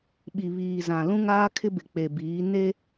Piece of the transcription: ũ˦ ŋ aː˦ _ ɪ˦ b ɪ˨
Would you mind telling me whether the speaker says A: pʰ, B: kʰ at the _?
B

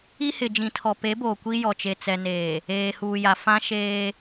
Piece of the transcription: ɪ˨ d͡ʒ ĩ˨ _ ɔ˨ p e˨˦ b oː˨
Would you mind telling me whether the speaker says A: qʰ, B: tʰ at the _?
B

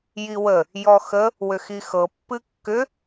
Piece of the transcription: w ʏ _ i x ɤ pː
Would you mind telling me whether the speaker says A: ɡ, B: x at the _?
B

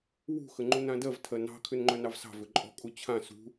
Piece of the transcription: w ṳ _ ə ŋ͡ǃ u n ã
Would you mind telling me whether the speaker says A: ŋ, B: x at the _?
B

